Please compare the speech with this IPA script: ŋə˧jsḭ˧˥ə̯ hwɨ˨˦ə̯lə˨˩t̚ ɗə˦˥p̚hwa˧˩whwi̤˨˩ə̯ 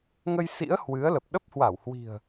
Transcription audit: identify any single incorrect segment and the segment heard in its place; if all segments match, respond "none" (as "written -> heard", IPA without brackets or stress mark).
t̚ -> p̚